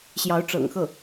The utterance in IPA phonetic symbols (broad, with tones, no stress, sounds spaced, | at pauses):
ɕ j ɑ˧˥ ʊ̯ ʈ͡ʂ ɤ̰˨˩ ŋ x ɤ˥˩